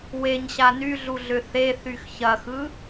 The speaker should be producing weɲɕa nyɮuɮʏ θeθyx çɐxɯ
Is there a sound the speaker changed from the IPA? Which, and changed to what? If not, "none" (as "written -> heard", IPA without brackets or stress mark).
none